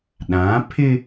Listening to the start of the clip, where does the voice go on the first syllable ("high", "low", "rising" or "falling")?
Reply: rising